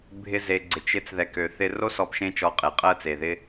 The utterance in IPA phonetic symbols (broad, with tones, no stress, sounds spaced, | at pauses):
bʱ ɪ˧ z e˨ ɡ͡ǀ ɪ˨ t͡ʃ ɪ˨˦ t͡s ð ɛ˨ k ø˨ θ ɪ˧ r o˦ s ɔ˧ p ʃ ẽ˦ t͡ʃ ɔ˧ qʼ e˨ qʼ ɜ˧ t͡s e˨ ð ɪ˧